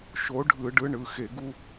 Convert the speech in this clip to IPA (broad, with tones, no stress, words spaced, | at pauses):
ʃo˨˥ɖʱɯ˧˩˧ɖɯ˨˥ ɳɯ˩˧xe˧˩˧ɡu˦